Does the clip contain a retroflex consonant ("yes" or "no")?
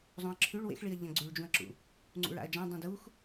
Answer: yes